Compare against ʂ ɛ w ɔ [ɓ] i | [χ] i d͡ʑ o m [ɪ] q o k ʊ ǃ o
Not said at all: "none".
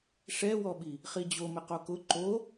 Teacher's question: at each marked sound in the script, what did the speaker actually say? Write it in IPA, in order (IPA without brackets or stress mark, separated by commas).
ɓ, χ, ɪ